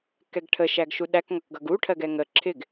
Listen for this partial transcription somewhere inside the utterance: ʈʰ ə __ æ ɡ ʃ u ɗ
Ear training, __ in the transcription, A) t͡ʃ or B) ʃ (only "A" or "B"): B